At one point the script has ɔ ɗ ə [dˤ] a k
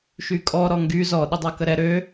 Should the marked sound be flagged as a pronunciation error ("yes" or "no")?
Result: no